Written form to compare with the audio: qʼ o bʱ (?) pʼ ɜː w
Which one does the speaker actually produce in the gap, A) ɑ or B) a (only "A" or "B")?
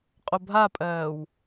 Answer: B